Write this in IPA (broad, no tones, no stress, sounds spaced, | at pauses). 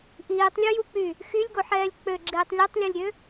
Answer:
ʔ iː tˤ lʲ u j u k͡p y | x y lʲ ɡ o ħ ɛː lʲ k͡p ø ɡ͡ǁ iː tˤ lʲ o tˤ lʲ ɔ lʲ ɾʲ ø